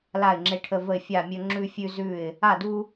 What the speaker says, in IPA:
l a˥˨ ɪ̯ ŋ͡ǁ e˥˨ ʈʰ ə˦ v ə˥˨ ɪ̯ fʲ a˥˨ mʲ ɵ˦ ŋ͡ǁ ʉ˦ fʲ ʉ˦ z ʉ˥˨ ɪ̯ | a˥˨ d u˦

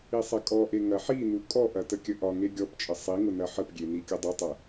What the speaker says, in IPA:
i sˤ ɐ kʼ ɔ ʔ e ŋ ɐ ħ i n u kʼ ɔ ʔ ɐ t ə kʲ ə ʔ ɒ ŋ e ɡʲ ɔ p t͡ʃʼ ə sˤ i ŋ ʊ n ɐ ħ ə p ɡʲ e n i kʲ ə dˤ ə tˤ ɐ

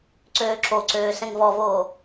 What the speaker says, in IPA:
ǀ øː ǁ o ǀ øː s ɛ̃ ŋ v ɔ v oː

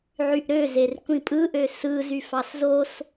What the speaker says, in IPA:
ʕ y ʔ ɾ ø z e r kʷ ĩ pʼ ɯ ʔ ø s ɯ z y f ɑ s z o s

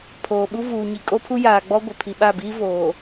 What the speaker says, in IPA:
pʰ oː˨ ɓ u˦ v uː˨ ɲ i˨ kʼ o˦ pʰ u˦ j aː˨ ɡ͡b ɔ˦ ɡʷ ɪ˨ pʰ i˨ ɓ a˦˨ b iː˦ v oː˨

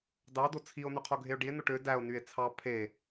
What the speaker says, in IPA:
d ɑ d o t͡sʰ i o̯ n y qʰ o ɡʱ e o̯ ɖ i e̯ n o ʈ ø d æ o̯ n y e̯ t͡sʰ ɑ pʰ e

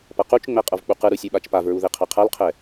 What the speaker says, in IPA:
p ʌ q u t͡ʃ ŋ͡m ɛ qʼ ʌ v k͡p u q ɯ ɾ u sʲ u ɓ a t͡ʃ p a v ɹ u ð e qʰ a qʰ a l qʰ ɛ

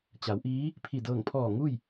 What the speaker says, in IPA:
t͡ɕ a˩˧ w ʔ iː˧˥ | pʰ i˧˩ d ɤː˧˩ ŋ pʰ ɔː˧˩ ŋ u˥˨ j

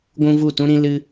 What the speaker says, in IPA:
ɡʷ ũ˦ v u˦˨ t ũ˦ ɾ ĩ˦ l ɨ˦

